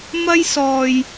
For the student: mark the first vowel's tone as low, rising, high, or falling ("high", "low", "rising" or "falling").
high